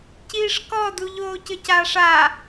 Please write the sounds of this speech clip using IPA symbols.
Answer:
c iː ʂ k ɔ d u ʎ oː c ɘ c aː ʂ a

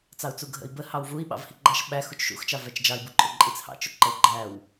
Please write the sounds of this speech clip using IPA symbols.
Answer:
t͡s ɑ u̯ t͡s u ɡʱ ə̰ i̯ b ə h ɑ w v u i̯ ɓ ɑ̰ v h i ɡ͡ǃ ɑ ʃ ɓ æ x u t͡ʃ ʃ ṵ x t͡ʃ ɑ v æ t͡ʃ d͡ʒ ɑ i̯ b u ǃʼ ʊ ǃʼ i t͡s h ɑ̰ t͡ʃ ʊ ǃ ə u̯ ɡ͡ǃ æ w

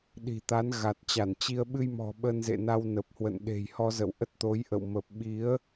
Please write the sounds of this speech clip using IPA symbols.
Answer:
ɗ i̤˨˩ t̪ a˨˦ n ɣ a˨˩ t̚ t͡ɕ a˧˩ n t͡ɕ i˧ ə̯ ɓ ɨ˧ j m ɔ̤˨˩ ɓ ə˧ n z ḛ˧˨ n a˧ w n ə˨˩ p̚ h w ə̰˧˨ n ɗ e̤˨˩ j h ɔ˧ z ə̰˧˨ w ʔ ə˦˥ t̚ t̪ o˨˦ j ʔ ə̰˧˨ w m ə˨˩ p̚ ɓ i˨˦ ə̯

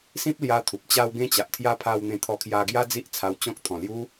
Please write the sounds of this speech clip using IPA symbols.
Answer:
s ĩ˦ p̚ l j a˧ t̪ʰ u˨ p̚ t͡ɕ a˦ w ɡ ẽ˦ t͡ɕ a˨ ʔ t̪ʰ j a˦ pʰ a˧ w n̪ ẽ˧ t̪ʰ ɔ˧ kʰ j a˧ ɡ j a˦ d͡z i˦ ʔ t͡sʰ a˧ w t͡ɕ ɔ̃˦ k̚ t̪ʰ ɔ̃˨˩ l j u˦

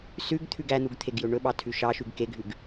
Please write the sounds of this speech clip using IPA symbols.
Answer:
s ʉ ɡ t̪ʰ ʉ ɡ æ n̪ u ɡ t̪ʰ e ɡ j ɵ ɳ ɵ ɓ ɑ tʰ ʉ ʃ ɑ ʃ ʉ ɡ k e ɡʱ ʉ ɡ

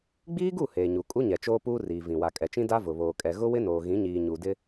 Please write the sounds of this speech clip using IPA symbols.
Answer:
ɡ͡b iː˦ ɡ u˦˨ h eː˨ ɲ u˨ kʼ u˦ ɲ ɛ˨ t͡ʃ oː˦ p uː˦ r iː˨ v ĩ˨ w a˨ kʼ ɛ˨ t͡ʃ ĩ˦ d a˦ v ʊ˨ β oː˨ kʼ ɛ˨ ɣ ʊ˦ w ɪ˦ n oː˨ ɣ ĩ˨˦ ɲ iː˨ ɲ u˨ d ɪ˦

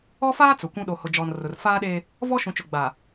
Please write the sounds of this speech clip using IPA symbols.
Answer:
ɔ˦ f aː˦ t͡s ʊ˨ kʷ ũ˦ ɗ o˨ h ʊ˨ d͡ʒ ɔ˨ n r ʊ˨ r f aː˦ ɗ e˦ | v ɔ˦ ʃ ũ˨ t͡ʃ ʊ˨ ɡ͡b a˨

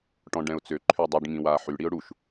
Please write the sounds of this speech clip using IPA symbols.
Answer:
ʈ ɔ̃ ɖ ɛ̃ ʊ̯ t͡s ø ǃʰ ø dˤ u ɖ ŋ ĩ w aː ħ y ɽ i ʊ̯ ɽ u ʃ

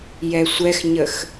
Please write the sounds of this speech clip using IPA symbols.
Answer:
j ɛ sʷ ɛ x ɲ ə x

